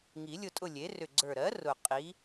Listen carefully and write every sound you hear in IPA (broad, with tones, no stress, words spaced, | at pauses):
ŋi˨˩˦lʲʊ˦˨tʼʊ˦˨ lʲe˩˥ rʏ˨˩ɡ͡ǀə˞˨˩ɾɜ˩˥ rʊ˨˩ qʼi˩˥